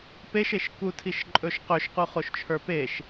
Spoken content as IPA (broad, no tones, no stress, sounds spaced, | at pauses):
p e ʃ e ʃ k u tʰ i ʃ ǃʼ ɵ ʃ q ɵ ʃ q u χ o ʃ t͡ʃʰ ə˞ p e ʃ